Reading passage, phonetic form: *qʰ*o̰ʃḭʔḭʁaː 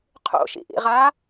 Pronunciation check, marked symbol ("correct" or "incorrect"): correct